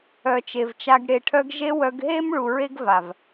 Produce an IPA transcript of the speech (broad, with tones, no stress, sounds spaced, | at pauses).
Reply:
œ˨ t͡ʃ e˨ v t͡ʃ a˧ ɡ ɽ e˨ ʈʰ œ˧ ɡ ʒ e˦ w œ˧ ɡ ɦ e˦ m ɭ u˨ ɹ e˦ ɡ v a˨ v